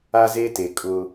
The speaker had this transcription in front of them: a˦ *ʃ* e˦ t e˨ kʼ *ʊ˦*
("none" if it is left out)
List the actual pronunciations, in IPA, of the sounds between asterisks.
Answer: z, ʊ˦

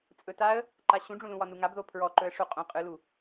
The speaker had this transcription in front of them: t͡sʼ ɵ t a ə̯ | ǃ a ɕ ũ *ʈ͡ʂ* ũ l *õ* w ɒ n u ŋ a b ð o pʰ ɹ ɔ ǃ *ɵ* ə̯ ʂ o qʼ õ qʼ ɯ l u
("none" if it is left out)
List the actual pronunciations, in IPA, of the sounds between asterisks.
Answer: ɖ͡ʐ, ũ, ɵ

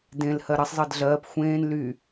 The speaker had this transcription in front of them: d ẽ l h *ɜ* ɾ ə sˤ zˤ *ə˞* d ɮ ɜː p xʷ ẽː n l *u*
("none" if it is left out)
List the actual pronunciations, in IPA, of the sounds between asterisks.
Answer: ɜ, ɤ, y

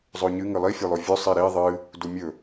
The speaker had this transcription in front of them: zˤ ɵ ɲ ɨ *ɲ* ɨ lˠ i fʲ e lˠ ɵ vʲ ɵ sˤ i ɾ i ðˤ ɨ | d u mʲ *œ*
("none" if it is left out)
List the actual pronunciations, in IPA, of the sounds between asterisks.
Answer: ŋ, ɵ

